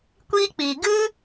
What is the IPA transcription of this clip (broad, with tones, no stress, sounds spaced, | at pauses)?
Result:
kʷ iː˦ k͡p iː˨ ɡ ɨ˦